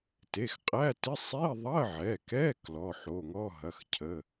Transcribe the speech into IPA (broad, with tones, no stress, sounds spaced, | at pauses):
t e˩˧˩ x qʼ æ˧˥˧ t ɪ˧˥˧ sˤ e˧˥˧ ðˤ ɐ˧˥˧ ʕ ɛ˩˧˩ k ɛ˧˥˧ k l ɔ˩˧˩ ħ o˩˧˩ ŋ ɔ˧˥˧ ɦ ɐ˩˧˩ x cʰ ə˩˧˩